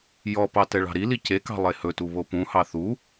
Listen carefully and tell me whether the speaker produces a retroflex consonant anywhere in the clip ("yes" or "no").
yes